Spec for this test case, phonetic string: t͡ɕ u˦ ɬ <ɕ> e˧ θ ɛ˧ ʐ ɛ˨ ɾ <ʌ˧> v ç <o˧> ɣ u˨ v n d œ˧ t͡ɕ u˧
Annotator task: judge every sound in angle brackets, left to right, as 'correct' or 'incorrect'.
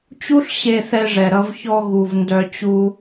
correct, correct, incorrect: ɔ˧

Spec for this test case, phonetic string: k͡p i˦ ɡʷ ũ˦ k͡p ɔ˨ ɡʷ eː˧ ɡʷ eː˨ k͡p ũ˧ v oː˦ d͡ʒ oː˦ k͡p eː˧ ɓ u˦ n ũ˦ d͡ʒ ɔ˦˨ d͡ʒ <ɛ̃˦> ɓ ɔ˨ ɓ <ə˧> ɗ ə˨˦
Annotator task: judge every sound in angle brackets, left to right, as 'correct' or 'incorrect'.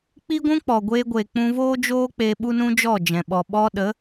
incorrect: ɛ̃˨, incorrect: ɔ˧

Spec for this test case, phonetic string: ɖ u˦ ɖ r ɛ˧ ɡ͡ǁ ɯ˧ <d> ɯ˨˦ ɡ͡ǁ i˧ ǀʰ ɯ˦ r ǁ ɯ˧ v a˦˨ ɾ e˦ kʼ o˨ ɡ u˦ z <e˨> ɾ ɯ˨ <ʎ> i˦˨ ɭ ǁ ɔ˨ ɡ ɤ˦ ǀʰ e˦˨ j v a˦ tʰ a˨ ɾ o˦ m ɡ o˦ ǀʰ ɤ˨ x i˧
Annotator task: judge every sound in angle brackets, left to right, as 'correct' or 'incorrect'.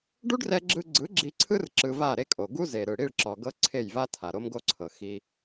incorrect: ɡ͡ǀ, correct, incorrect: ɽ

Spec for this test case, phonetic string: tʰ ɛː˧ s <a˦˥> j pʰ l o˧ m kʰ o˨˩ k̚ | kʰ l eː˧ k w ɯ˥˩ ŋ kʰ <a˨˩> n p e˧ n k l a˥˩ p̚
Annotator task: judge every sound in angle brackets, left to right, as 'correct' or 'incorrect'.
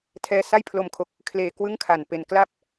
incorrect: a˥˩, correct

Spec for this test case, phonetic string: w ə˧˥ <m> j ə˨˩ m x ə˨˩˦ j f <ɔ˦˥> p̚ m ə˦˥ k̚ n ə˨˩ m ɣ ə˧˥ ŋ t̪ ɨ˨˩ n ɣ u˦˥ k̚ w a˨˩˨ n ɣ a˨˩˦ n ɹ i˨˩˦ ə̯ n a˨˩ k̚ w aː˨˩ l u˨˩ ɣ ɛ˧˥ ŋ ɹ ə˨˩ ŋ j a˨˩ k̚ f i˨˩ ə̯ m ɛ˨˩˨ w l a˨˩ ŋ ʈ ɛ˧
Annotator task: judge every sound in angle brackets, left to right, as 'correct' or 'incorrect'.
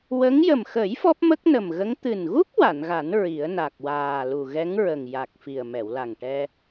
incorrect: ŋ, correct

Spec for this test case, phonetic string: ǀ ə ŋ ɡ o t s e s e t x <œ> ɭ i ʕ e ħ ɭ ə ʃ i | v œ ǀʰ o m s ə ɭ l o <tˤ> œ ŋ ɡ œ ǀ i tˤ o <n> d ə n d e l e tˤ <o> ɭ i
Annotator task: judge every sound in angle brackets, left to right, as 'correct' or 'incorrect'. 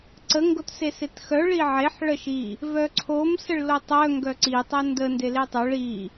correct, correct, correct, correct

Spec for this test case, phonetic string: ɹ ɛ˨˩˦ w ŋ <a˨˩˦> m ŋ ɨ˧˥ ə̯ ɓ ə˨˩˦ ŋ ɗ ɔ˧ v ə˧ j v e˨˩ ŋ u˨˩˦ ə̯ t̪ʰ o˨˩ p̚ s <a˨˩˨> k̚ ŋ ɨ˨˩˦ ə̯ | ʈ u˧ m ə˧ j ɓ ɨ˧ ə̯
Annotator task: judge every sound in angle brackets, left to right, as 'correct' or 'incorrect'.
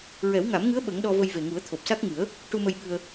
correct, incorrect: a˦˥

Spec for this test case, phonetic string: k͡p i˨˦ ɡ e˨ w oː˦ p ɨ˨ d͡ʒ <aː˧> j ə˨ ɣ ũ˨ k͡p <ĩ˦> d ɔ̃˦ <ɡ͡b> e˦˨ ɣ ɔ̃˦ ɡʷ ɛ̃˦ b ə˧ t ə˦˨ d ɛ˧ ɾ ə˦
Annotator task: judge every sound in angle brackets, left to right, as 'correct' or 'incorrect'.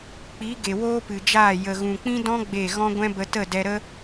incorrect: aː˦˨, correct, correct

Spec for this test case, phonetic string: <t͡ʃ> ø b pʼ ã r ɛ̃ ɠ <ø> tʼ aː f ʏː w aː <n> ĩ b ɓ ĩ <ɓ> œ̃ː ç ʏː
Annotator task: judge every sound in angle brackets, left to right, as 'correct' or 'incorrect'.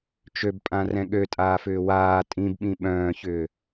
correct, correct, incorrect: tʼ, correct

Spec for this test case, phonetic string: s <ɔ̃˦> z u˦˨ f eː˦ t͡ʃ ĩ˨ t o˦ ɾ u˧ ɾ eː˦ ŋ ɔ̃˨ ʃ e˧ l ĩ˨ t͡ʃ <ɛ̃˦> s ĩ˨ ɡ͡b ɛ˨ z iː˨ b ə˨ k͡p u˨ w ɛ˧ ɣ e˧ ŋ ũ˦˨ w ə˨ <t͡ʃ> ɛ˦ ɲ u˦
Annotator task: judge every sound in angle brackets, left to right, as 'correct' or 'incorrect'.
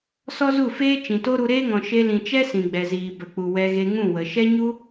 incorrect: ɔ˦, incorrect: ɛ˦, incorrect: ʃ

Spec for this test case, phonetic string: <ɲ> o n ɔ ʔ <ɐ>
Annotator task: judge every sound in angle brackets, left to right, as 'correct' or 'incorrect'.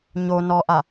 correct, incorrect: a

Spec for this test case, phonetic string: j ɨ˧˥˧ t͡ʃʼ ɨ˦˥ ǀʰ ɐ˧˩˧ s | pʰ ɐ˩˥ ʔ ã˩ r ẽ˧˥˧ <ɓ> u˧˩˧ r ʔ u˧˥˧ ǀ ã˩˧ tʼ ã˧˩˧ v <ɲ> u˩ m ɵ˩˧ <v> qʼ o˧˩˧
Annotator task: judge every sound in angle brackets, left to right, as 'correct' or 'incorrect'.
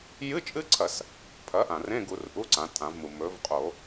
incorrect: ɡ, incorrect: m, correct

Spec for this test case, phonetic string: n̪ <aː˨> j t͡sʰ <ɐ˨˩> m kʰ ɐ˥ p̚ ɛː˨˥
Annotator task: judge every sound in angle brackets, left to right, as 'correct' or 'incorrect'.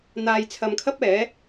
correct, incorrect: ɐ˨˧

